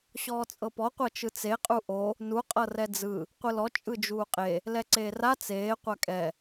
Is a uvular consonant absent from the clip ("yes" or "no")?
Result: no